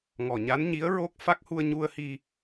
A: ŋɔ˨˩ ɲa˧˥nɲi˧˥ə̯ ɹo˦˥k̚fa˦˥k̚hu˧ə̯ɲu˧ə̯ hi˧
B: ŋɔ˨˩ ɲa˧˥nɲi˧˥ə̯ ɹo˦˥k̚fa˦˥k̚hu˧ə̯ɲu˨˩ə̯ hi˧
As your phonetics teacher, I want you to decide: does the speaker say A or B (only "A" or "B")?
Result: A